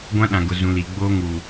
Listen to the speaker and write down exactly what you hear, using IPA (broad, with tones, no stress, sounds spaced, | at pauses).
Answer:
ɡʷ ã˦ ɗ ã˨ ɡ ʊ˨ z ũ˨ l i˨ ɡ͡b oː˦ ŋ u˨